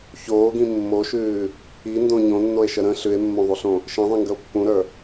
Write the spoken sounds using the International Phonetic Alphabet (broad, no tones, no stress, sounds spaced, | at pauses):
ç oː ɡ ĩ mː o ʃ ʉː | i n d õ ɲ õ nː o e̯ ʃ ə ɾ ə̃ ɬ ʉ e̯ mː õ ðˤ u ɬ õ | ʃ ĩ ðˤ ĩ ŋ ɡ ə o̯ pː ũ ɾ ə˞